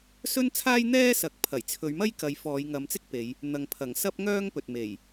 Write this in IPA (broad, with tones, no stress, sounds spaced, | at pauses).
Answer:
s ɵ˥ n t͡sʰ aː˥ j n̪ ɛː˥ s ɐ˨˥ k̚ pʰ ɐ˨˩ j t͡sʰ ɵ˨˧ ɥ m ɐ˥ j k ɐ˧ j f ɔː˨˧ j ŋ ɐ˨˧ m t͡s ɪ˥ k̚ p e˨˧ j | n̪ ɐ˨ ŋ pʰ ɐ˨˩ ŋ s ɐ˥ p̚ ŋ œː˥ ŋ p ɵ˨ t̚ m e˨˩ j